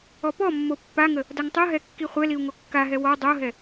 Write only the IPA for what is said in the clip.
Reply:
ɔ p ɔ mː o pː a ŋ ə | d a ŋ tˤ o ɦ ɛ kː i χʷ ɛ l i u̯ ŋ o kː a ɦ ɛ w ɔ dˤ o ɦ ɛ

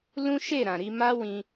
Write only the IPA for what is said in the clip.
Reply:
l ũ˦ ʃ e˦˨ ɾ ã˨ ɾ i˧ m a˦ w ĩ˧

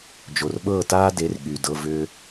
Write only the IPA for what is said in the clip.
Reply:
d͡ʒ o˨ r ɓ ɤː˦˨ t aː˦ d e˨˦ r ɠ y˨ d ɤ˦˨ v ʏː˧

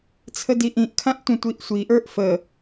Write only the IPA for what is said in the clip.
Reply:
t͡sʰ ə d i ʔ ĩ ʔ kʰ ã ʔ tʷ ə̃ tʷ i ʔ sʷ i ʔ ə˞ ʔ f ə

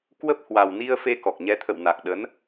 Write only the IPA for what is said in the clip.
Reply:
k w ə˦˥ p̚ h w a˨˩ w n i˧ ə̯ f e˧ k ɔ˨˩ k̚ ɲ ɛ˨˦ t̪ʰ ə̰˧˨ w n a˨˩ k̚ ɗ ə˨˦ n

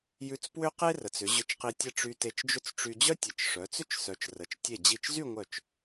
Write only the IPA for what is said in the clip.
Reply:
j ʉ˧ t͡s p w ʏ˥ q e˥ r ə˩˧ t͡s ʏ˩˧ ʑ ʏ˧ t͡ʃ q i˧ tʲ ə˥˧ ʈ͡ʂ y˧ t e˧ t͡ʃ d͡ʒ ʏ˥˧ t͡s ʈ͡ʂ y˧ d͡ʑ œ˥ tʲ ə˩˧ t͡ʃ ʂ œ˩˧ t͡s ʏ˥ t͡ʃ s œ˩˧ t͡ʃ r ə˩˧ t͡ʃ tʲ e˧˩ d͡ʑ i˧˩ t͡ʃ z y˥˧ ŋʷ œ˧˩ t͡ʃ

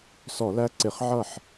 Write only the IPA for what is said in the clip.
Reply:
s ɔ˧˩˧ l æ˦˥ ǀ ɪ˧˩˧ χ ʕ ʌ˥˩ ħ

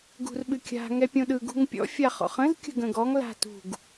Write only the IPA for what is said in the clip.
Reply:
ɡ ṳ r ɓ ɨ kʲ a̤ ŋ ɛ pʲ õ ɗ ɯ ɡ ṳ ŋ pʲ ɔ̰ fʲ a χ ɔ̰ χ ə̃ z kʲ ə̤ ɡ ə̃ ɡ ɔ ŋ l a̤ t ṳ ɡ

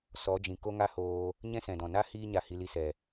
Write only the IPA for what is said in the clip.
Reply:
s ɔ˨˦ d͡ʒ ĩ˨ k o˦ ŋ a˦ h oː˧ | ɲ ɛ̃˦ s ɛ̃˨ d ɔ̃˨ n a˦ h iː˧ ɲ a˨ h i˨ l i˧ s ɛ˨

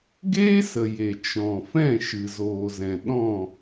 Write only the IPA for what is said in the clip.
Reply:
ɡ eː˦ s ə˨ j e˨ t͡ʃ ɔ̃˨ f ɛ̃˦˨ ʃ ɨ˨ z oː˨ z ɛ̃˨ ɗ ɔ̃˦˨

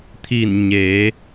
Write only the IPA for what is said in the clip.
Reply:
t̪ʰ i˧˩ n ɲ eː˩˧

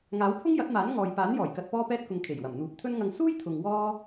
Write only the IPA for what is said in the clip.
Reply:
ŋ aː˨˥ w pʰ ʊ˥ ŋ j ɐ˨˥ t̚ m aː˨˥ n ŋ ɔː˨ j p aː˨˥ n j ɔː˨˩ j k ɐ˧ t̚ p ɔː˥ p ɛː˧ t̚ k ʊ˨ ŋ kʰ e˨˩ j w ɐ˨˩ m n̪ uː˨˥ p̚ t̪ʰ ɵ˥ n ŋ ɐ˧ ŋ s uː˥ j t̪ʰ ʊ˨ ŋ w ɔː˥

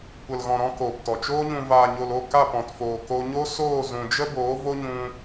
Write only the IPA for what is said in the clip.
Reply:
kʷ ə˨ l ɣ ɔ̃˨ ɾ ɔ̃˧ k oː˨ p t ɔ˨ t͡ʃ oː˦ ɲ ũ˧ v aː˨ ɲ o˨ l o˦˨ k a˦˨ p ɔ̃˨ t f oː˨ k o˧ ɲ o˦ s oː˦˨ z ũ˨ d͡ʒ ə˦ b oː˨˦ v o˦ ɲ ũ˧

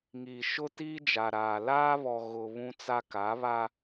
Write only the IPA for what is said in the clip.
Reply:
ŋ iː˨ ʃ ʊ˦ t iː˦ d͡ʒ a˨ ɾ aː˨ l aː˦ β ɔ˨ ɣ ʊ˨ β ũ˦ t͡s a˦ k a˨˦ β a˦

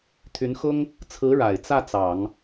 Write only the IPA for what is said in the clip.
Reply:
t̪ʰ y˧˥ n x ʊ˥ ŋ | t͡sʰ ɹ̩˧˥ ɻ a˨˩ ɪ̯ t͡s ä˥˩ t͡s ɑ˨˩˦ ŋ

